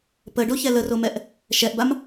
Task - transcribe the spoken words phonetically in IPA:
p ə ɖ o ç ɛ l ə r o m ɛ ʔ | ʃ ɛ ʔ b a m

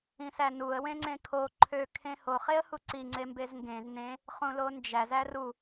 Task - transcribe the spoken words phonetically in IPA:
ĩ s æ n u ə̯ w ẽ ŋ͡ǀ ẽ kʰ o ǃʰ ø kʰ ẽ h o χ e ə̯ h u ǀ i ŋ͡ǀ e m b e z ŋ ɡ ẽ z n ẽ | χ ũ l o n d͡ʒ æ z æ r u

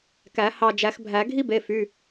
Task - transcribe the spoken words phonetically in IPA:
k æ˨˩˦ h ɑ˧˩ d͡ʒ æ˨˩˦ x bʱ æ˨˩˦ ɡʱ i˥ b e˩˧˩ f y˩˧˩

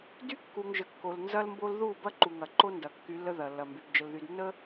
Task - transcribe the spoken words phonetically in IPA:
d y˦ kː u˨ ŋ ʒ ə˨ kː o˨ l n z ɐ˦ l m b o˦ l ð u˦˨ b ɐ˦ ǃ u˨ ŋ ɐ˨ ǃ o˦ n d ɐ˨ kː y˨˦ lː ə˦ ð ɐ˨ lː ɐ˨ m b y˨ b d͡ʒ ə˨ l ð y˨ d nː ə˦

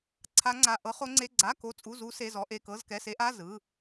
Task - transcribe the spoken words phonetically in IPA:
ǀʰ a˦˥ ŋ͡ǀ a˧˥˧ ʔ ɤ˦˥ χ o˦˥ ŋ͡ǀ e˧˥˧ ɡ͡ǀ a˧˥˧ k o˦˥ t͡sʼ u˧˥˧ z u˦˥ s e˧˥˧ z ɔ˦˥ ʔ e˧˥˧ k ɤ˧˥˧ z k ɛ˧˥˧ s e˦˥ ʔ a˧˥˧ z ɯ˧˥˧

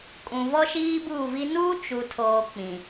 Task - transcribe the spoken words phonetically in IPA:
kʼ ũ˨ v ɔ˦ ʃ iː˦ b uː˦˨ v i˦ n uː˦ t͡ʃ u˨ tʰ oː˨ k͡p ĩ˨

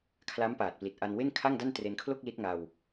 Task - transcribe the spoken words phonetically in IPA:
kʰ l a˦˥ m p aː˨˩ t̚ p l i˨˩ t̚ ʔ a˧ n w e˥˩ n kʰ a˥˩ ŋ d a˥˩ n t r e˧ n kʰ l o˥˩ k̚ l i˦˥ t̚ ŋ a˧ w

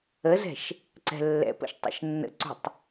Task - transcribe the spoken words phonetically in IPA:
ə z ɛ̤ ʃ | ǀ ɛ̤ lː ɛ̰ p ə̰ ʃ tˤ ə̰ ʃ nː ə̰ ǀ ṳ tˤ

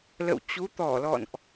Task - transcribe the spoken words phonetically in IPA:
l ə̰˧˨ w t͡ɕ u˨˦ t̪ ɔ˧˩ l ɔ̰˧˨ n ʔ

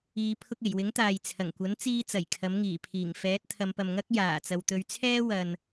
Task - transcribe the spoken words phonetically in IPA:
iː˨˧ pʰ ʊ˧ k̚ e˨˩ j w ɪ˨˥ ŋ t̪ aː˨ j t͡sʰ ɐ˨˩ ŋ kʷ ɐ˨˥ n t͡s iː˧ t͡s ɐ˨˩ j kʰ ɐ˨˥ m ŋ iː˨˩ pʰ iː˨˩ ŋ f ɛː˨˥ t̚ t̪ʰ ɐ˨˧ m p ɐ˨ m ŋ ɐ˥ k̚ j aː˨˩ t͡s ɐ˨ w t̪ ɵ˨˧ ɥ t͡sʰ ɛː˥ w ɐ˨ n

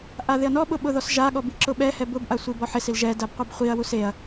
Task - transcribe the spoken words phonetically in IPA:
ʔ a ð ɪ ɐ̯ n ɔ ɓ ʊ ɓ ʊ ð ɔ s ʒ a ɠ ɔ b i ǁ ʊ ɓ ɛ h ɛ b ʊ b ʔ a sʷ i b ɔ ħ ɪ s i l ʒ ɛ d a b qʷ i b χʷ i ɐ̯ w u s e ɐ̯

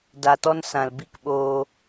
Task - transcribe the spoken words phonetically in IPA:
d a˨ t ɔ˧ n s ã˨ l b i˦ k ɓ oː˧

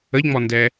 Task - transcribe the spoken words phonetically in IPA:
ə ʎ ŋ͡m ɔ n d ɛ

